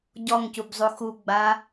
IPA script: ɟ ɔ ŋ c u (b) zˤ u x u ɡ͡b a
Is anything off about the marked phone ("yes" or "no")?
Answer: no